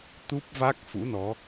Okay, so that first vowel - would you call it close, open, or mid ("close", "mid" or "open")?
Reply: close